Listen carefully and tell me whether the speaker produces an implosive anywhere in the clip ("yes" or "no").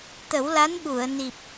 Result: yes